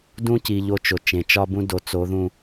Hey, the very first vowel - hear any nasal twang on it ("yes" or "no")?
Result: yes